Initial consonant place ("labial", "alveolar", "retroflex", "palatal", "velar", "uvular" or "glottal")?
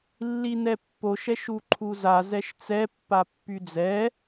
alveolar